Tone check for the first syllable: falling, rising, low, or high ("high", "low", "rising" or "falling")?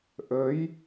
rising